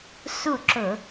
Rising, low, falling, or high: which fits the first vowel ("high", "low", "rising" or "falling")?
falling